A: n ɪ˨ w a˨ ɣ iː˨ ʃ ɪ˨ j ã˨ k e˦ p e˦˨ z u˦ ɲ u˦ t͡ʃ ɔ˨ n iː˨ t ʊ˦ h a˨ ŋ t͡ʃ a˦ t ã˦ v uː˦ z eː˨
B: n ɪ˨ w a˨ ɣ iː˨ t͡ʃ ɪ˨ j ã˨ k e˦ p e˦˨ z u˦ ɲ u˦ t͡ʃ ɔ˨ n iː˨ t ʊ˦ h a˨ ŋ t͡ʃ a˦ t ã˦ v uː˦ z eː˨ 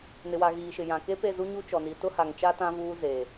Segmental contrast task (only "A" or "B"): A